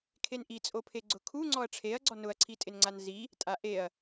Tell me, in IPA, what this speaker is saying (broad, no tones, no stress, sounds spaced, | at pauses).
kʰ e n ʔ i t͡sʼ o pʰ e ɡ͡ǀ ʊ kʰ u ŋ͡ǀ ɔ ɐ̯ ʈ͡ʂʰ e ɐ̯ ɡ͡ǀ ɔ n ʊ ɐ̯ ǀʰ i tʼ ɪ n ŋ͡ǀ a n z i | tʼ a ʔ e ɐ̯